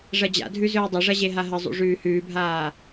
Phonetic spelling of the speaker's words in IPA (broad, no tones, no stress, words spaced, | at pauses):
ʐɐd͡ʑa̰dʱʉ zɵːdˤɐʐɐ ʑeɦaɦɐzˤṵ ʐʉːhʉːbʱaː